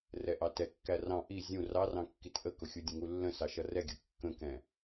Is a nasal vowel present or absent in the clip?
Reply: present